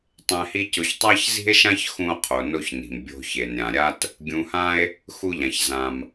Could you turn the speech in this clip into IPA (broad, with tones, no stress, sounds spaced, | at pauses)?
tˤ ɛ̃˧ h i˥ c ʊ˧ ç tˤ a˥ ç z i̤˥ e̯ ʃ ã˥ ç x ũ˥ o̯ qʰ o˩ n o˥ ç n i̤˩ m bʲ o̤˧ ç e˩ n ɾʲ ã˩ ɾʲ a˥ t | ɡʲ ũ˧ h ã˥ e̯ | x u˥ ʎ ã˩ ç z ã˩ m